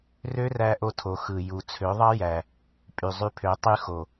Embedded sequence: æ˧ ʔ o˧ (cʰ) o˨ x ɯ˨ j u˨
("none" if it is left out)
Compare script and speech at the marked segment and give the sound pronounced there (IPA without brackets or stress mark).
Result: tʰ